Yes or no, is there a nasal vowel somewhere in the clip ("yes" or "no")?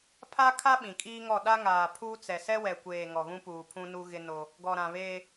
yes